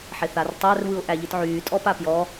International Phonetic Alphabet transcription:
ħeθartˤær βɯʊ̯ʔæʎɯtʕyː tʼɔpapjɔ

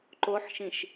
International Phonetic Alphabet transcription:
ǃoħʃĩʃ

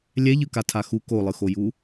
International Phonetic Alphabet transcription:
lʲɛʎɯkatʰa xu kolˠɯxoju

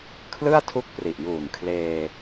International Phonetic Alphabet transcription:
kʰlɯ˥˩a̯tʰu˦˥k̚ pri˨˩ʔjuː˨˩nkʰleː˧

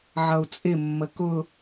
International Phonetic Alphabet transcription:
ʕʌu̯t͡sʼɪ mːəkʊ

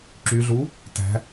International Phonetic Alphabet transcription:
ǁyɮuː | tæ̤

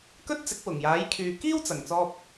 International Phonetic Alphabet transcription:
kɵ˥t̚t͡sɪ˨˥k̚ wʊ˨˩ŋjaː˨˥jkʰyː˨kiː˥w t͡sɐ˨ŋt͡sɔː˥p̚

